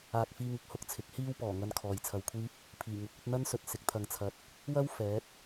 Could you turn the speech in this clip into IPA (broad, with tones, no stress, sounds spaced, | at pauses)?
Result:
aː˨ k̚ f iː˧ ŋ ɪ˧ k̚ h ʊ˧ k̚ t͡sʰ ɪ˨˥ k̚ h iː˥ w p ɔː˨˩ ŋ ɐ˧ n kʰ ɔː˨ j t͡sʰ ɐ˧ w kʷʰ iː˥ p̚ | pʰ iː˨˩ ŋ ʊ˨˥ k̚ ɵ˧ t̚ n̪ ɐ˥ n s ɵ˨ t̚ s ɪ˨˥ k̚ t̪ʰ ɐ˧ ŋ t͡sʰ ɐ˧ t̚ | w ɐ˥ w f ɛː˨˥ t̚